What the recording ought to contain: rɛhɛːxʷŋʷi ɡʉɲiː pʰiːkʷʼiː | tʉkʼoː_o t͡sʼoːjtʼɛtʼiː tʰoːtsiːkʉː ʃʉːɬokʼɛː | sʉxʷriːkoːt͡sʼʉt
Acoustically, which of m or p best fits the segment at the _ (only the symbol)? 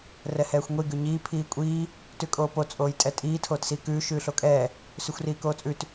p